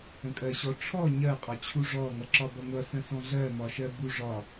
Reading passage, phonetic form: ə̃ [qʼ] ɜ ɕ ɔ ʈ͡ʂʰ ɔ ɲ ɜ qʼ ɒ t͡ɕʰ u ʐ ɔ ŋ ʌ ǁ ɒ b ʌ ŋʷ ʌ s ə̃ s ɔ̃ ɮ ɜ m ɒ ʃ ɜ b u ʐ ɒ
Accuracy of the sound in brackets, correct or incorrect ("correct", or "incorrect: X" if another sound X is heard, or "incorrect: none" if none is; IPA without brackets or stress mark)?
incorrect: kʼ